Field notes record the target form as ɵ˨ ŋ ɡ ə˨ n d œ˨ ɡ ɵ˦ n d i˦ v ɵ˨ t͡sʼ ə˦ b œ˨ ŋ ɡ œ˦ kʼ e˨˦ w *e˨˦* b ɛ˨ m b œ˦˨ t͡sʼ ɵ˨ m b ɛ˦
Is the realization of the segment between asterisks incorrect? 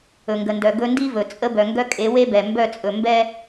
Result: yes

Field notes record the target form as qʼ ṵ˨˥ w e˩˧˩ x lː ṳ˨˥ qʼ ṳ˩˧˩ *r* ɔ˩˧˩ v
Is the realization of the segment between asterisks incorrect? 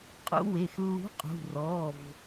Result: no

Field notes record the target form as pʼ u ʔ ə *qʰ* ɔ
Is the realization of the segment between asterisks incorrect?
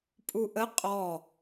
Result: yes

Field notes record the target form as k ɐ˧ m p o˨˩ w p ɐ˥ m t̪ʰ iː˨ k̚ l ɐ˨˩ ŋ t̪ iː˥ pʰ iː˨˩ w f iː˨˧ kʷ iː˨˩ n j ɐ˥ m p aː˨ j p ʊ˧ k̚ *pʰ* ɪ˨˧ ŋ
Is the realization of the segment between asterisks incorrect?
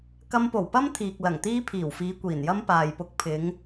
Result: no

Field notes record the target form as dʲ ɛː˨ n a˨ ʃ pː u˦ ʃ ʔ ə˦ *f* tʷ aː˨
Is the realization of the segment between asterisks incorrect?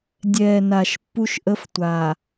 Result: no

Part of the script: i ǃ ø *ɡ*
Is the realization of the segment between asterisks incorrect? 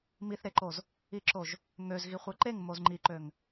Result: yes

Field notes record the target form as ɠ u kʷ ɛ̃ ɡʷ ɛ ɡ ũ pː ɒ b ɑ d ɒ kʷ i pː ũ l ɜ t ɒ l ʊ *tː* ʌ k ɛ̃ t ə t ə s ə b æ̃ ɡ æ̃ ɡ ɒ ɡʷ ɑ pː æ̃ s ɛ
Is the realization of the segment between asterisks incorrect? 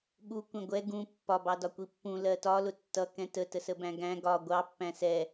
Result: no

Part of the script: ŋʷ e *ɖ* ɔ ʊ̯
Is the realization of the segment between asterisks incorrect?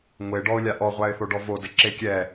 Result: no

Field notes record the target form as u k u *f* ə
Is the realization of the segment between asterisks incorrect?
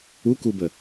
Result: yes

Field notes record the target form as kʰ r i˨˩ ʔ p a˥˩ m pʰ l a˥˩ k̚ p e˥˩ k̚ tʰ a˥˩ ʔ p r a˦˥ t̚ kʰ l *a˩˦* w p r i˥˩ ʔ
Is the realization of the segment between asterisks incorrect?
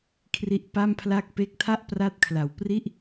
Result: yes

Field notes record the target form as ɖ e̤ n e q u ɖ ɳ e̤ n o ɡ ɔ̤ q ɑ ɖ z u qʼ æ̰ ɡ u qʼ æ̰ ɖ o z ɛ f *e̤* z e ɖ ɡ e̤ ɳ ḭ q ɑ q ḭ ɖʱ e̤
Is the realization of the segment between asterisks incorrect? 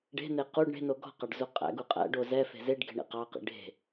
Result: no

